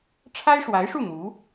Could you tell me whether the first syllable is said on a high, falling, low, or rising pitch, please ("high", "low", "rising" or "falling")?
high